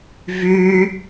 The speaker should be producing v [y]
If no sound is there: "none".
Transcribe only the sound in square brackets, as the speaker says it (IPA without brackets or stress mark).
y